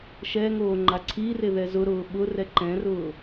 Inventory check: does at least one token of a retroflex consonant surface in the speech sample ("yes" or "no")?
no